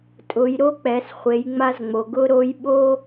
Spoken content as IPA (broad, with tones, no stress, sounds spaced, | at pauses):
tʼ ʊ˩˧ j ɾ o˧˥ k͡p ɛ˩˧ s χʷ e˩˧ j ŋ͡m a˧ z ŋ͡m o˩ ɡ ʊ˥ ɾ o˧˥ j ɓ o˥